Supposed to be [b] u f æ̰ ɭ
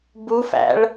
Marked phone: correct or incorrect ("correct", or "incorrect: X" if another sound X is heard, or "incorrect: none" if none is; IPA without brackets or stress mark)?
correct